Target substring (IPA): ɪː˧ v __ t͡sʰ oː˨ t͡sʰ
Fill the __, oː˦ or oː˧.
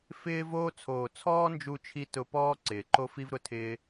oː˧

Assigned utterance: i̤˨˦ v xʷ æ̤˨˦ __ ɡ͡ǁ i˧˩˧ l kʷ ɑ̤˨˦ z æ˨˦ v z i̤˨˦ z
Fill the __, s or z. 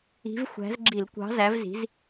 z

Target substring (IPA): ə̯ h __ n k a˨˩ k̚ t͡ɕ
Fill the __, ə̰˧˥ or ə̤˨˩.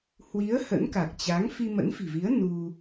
ə̰˧˥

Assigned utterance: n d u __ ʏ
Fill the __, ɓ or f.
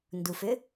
f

